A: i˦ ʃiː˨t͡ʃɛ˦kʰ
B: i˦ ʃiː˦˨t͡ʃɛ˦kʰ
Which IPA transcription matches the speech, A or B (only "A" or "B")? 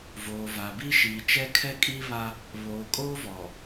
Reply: A